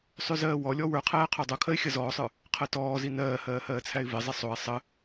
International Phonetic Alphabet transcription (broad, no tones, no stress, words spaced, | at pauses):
sˤʉzɜːwɔlʲɔ wə˞qʰæː qʰodˤokʰɜɪ̯ xʲɜzɔːsˤə˞ | qʰɜtɔːzi nɜːhɜː hɜːt͡sʰæɪ̯vezˤe sˤoɪ̯ sˤə